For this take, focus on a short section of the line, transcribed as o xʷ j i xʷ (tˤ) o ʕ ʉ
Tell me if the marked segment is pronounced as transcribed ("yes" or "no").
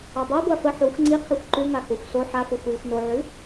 no